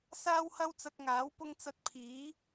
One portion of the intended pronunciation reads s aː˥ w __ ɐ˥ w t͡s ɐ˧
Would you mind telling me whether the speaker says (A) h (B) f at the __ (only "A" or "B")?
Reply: A